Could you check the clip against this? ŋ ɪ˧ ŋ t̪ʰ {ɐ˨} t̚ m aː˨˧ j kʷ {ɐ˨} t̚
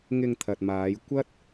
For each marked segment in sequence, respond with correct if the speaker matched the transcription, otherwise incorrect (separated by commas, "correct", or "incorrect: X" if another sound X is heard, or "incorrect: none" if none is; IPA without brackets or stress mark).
correct, incorrect: ɐ˥